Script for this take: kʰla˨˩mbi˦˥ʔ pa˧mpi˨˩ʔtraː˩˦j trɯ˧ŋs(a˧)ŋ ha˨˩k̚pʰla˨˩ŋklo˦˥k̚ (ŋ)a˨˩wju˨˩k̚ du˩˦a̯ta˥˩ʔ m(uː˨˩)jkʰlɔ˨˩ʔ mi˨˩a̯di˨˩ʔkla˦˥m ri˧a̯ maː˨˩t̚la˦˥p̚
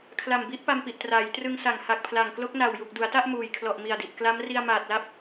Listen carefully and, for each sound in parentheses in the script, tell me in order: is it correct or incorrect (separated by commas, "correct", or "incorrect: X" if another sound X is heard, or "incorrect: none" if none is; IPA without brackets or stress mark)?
incorrect: a˨˩, incorrect: n, correct